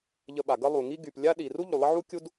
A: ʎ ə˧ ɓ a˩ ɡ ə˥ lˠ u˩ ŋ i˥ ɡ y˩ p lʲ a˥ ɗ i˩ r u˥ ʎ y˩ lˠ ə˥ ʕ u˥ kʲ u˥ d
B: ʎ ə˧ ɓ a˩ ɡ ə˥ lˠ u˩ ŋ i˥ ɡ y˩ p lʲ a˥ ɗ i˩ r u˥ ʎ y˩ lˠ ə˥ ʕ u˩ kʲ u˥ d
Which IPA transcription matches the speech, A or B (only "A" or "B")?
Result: A